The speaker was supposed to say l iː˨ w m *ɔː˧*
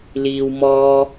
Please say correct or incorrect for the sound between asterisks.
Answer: correct